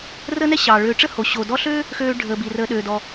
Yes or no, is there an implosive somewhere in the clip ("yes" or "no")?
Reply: yes